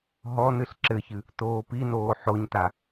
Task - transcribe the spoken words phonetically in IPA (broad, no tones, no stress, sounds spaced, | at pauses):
ɦ ɔ n ɨ ɬ ǁ ɘ ç ɨ | t oː p i n oː ħ o ɲ t a